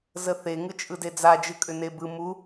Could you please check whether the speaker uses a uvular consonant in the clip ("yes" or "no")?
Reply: no